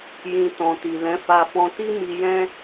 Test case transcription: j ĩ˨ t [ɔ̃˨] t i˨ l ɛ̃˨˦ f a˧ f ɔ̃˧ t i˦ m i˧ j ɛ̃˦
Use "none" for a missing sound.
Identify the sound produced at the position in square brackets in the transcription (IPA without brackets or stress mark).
ɔ̃˨